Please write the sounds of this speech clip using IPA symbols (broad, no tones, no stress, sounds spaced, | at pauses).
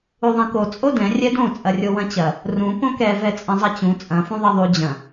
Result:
u ðˤ ɛ̃ k o t͡sʼ o d ɛ̃ rʲ ɛ d õ t͡sʼ ɐ rʲ o w ɐ̃ t͡ɕ ɐ | r ũ p õ k ɛ v ɛ t͡sʼ ɐ̃ zˤ ɐ t͡ɕ ũ t͡sʼ ɐ̃ f ũ ðˤ ɛ ðˤ u d͡ʑ ɐ̃